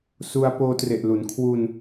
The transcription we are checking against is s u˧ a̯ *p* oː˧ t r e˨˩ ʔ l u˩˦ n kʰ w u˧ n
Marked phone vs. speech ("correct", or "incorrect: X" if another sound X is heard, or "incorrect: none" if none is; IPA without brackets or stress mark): correct